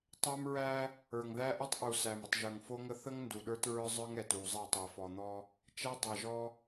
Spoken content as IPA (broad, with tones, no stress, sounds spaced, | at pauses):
tˤ æ˦ m ɹ æ˦ | ə˞˨ ŋ ð æ˦ ʔ ə˦ tˤ ʔ u˨ s æ˨ m ə˨ tˤ ʒ ə˞˨ ŋ f o˦ ŋ ə˦ θ ə˦ ŋ n d u˨ ɗ ə˞˦ t ɹ ə˞˦ zˤ ə˞˦ ŋ ɛ˨ t u˨ zˤ æ˦˨ tˤ ə˞˨ f ɔ˨ n̪ ɔ˦ | t͡ʃ æ˦ dˤ ɛ˨ ʒ ɔ˦